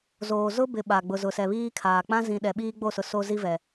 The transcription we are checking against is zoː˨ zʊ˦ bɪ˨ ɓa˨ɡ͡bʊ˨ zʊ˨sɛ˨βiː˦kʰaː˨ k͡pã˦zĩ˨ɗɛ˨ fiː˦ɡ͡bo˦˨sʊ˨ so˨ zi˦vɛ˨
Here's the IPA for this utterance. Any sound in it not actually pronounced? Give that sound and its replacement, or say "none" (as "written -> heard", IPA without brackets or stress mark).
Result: f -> ɓ